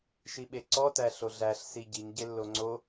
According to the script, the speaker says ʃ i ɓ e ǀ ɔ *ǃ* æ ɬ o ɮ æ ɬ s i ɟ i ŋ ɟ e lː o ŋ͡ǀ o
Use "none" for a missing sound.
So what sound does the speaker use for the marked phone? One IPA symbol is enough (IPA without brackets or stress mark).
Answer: t